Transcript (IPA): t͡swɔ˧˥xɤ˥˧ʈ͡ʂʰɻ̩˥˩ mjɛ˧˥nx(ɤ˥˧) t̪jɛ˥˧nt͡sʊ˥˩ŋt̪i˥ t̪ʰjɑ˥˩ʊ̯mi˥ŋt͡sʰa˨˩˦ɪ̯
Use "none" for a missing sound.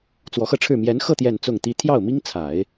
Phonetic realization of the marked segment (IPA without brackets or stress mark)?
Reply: ɤ˥˧